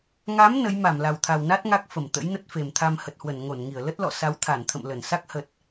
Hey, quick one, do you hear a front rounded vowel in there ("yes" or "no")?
no